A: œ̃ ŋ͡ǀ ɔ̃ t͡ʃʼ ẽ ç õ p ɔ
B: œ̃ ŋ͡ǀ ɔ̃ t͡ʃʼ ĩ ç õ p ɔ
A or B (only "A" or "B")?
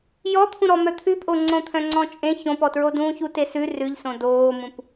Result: A